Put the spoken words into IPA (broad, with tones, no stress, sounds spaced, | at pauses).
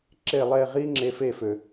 ǁ e˧˩ lˠ e˧˩ ʁ i˧ ŋ͡ǁ e˩˧ f e˧˩ f ø˩